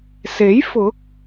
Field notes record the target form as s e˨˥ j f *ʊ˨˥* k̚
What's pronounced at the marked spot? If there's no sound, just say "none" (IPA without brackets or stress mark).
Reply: ʊ˨˥